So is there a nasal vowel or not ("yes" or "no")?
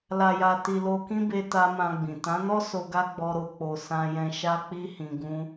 yes